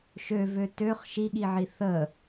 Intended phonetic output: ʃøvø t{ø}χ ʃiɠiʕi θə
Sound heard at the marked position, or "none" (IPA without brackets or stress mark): ø